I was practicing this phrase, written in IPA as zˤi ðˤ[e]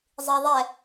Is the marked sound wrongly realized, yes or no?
yes